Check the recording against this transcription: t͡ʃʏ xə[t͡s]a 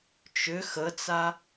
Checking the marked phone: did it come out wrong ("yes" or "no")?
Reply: no